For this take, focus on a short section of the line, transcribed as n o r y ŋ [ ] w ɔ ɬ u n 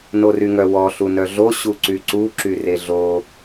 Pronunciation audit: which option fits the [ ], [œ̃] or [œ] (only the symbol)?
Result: œ